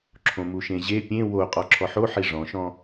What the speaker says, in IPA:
ǁʰ õ m u ʃ ẽ ʑ e pʲ ẽ w o qʼ ɔ ǁʰ ɔ ħ o ħ i ʐ ɔ̃ ʃ ɔ̃

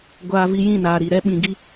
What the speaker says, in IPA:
ɡʷ aː˦ v i˦ j ĩ˦˨ n aː˨ ɾ i˨ ɾ ɛ˦ ɓ ĩ˧ ɡ i˦

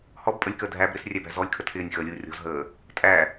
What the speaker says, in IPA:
h ɔ b pʼ ə lʲ k əː dʱ æ b ɾ ɪ s rʲ æ b æ̤ z ɔ lʲ kʰ ə tʰ ɪː nʲ x əː lʲ uː rʲ ɔ̤ z ɦ əː | tʼ æ

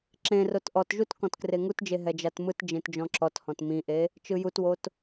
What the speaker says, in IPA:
ǁ ẽ r o t ʔ ɔ t ʒ u t k ɔ̃ t k r e ŋ u t d͡ʒ e ɦ ɛ d͡ʒ a t m ɯ t d͡ʒ ẽ t d͡ʒ ɔ̃ ǁ ɔ t h ɔ̃ t m ĩ ʔ e | t͡ʃ ɯ j u t w o t

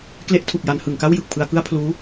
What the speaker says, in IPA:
k l e˦˥ ʔ tʰ u˨˩ k̚ j a˩˦ n h ɯ˨˩ ŋ k a˥˩ w j ɯ˨˩ k̚ pʰ ɯ˧ a̯ k ɯ˥˩ a̯ pʰ l uː˦˥

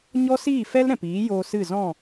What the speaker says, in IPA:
ɲ ɔ˦ s iː˦˨ f ɛ˦ l ɾ ɛ̃˨ p iː˨˦ j oː˧ s ɨ˦˨ z ɔ̃˦˨

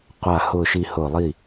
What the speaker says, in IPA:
qʷ a˧˩ h ʊ˥˨ ʃ i˥˨ h ʊ˧˩ lˠ i˥˨

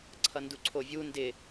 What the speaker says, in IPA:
ǀʰ ʌ n d u ǀʰ o vʲ u n d ɪ

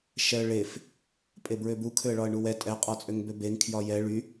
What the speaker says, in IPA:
ʃ ɛ ə̯ ɭ e f | pʼ e b ɹ ø b u kʰ ø ə̯ ɭ ɒ ə̯ ɳ u w ɛ tʼ ɛ qʼ ɒ t͡sʼ ø ŋ b ø b e ŋ kʰ j ɒ j ɛ ɭ y

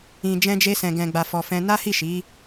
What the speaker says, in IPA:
ĩ˨ d͡ʒ ɛ̃˧ d͡ʒ e˧ s ɛ̃˨ ɡ ɛ̃˨ ɡ͡b a˨ f ɔ˨ f ɛ̃˧ n a˦ h i˦˨ ʃ i˨˦

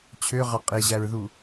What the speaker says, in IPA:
t͡ɕʰ ø ʁ ɑ qʼ e ʑ æ ɹ ð u

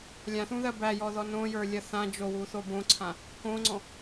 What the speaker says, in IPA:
lʲ ã θ ũ ð ɜ b æ j ɔ ð ɔ n õ j ə˞ lʲ ɜ θ ã d͡ʒ o w u θ o b õ ǀʰ ã | k õ ŋ͡ǀ ɔ̃

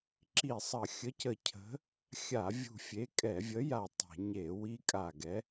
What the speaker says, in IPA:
ǁ i˧˩ sˤ ə˧˩˧ xʲ ə˨˥ c ə˧˩ cʰ ə̤˨˥ | xʲ a˧˩˧ vʲ ṳ˧˩ fʲ e˨˥ kʼ ɛ˧˩˧ vʲ ə˨˥ j a˧˩ tˤ ɛ̤˧˩˧ ɲ e˧˩˧ w i˦˥ kʼ a˧˩ ɡ ɛ˨˥

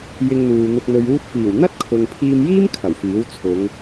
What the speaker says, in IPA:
j ɪ˧ ŋ n̪ uː˨ n̪ ʊ˨ k̚ n̪ ɵ˨ ɥ uː˧ t̚ f iː˨˩ w n̪ ɐ˥ t̚ kʰ ʊ˨ ŋ pʰ iː˧ m j iː˥ m kʰ ɐ˨˩ w f iː˨˥ w t͡sʰ ʊ˨˧ ŋ

